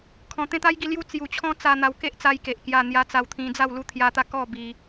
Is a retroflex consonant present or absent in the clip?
absent